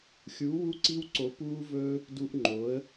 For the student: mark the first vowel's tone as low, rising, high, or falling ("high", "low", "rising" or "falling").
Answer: rising